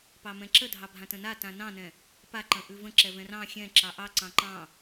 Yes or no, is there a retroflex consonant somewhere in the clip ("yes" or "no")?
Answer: no